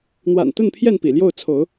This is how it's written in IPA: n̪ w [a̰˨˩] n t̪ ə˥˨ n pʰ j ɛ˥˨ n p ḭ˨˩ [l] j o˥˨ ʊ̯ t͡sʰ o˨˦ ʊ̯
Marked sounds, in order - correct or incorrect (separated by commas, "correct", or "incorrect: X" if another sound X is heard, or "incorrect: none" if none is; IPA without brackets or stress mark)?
correct, correct